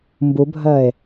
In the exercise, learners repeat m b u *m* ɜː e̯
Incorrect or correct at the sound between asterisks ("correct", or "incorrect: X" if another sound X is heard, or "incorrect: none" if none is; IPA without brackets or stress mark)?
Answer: incorrect: bʱ